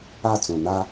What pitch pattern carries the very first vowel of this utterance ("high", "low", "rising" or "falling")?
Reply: falling